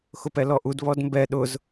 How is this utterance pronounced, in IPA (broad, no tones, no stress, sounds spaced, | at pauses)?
x ʊ p ɛ l ɔ ʔ u d β ɔ d m b ɛ ɗ ʊ z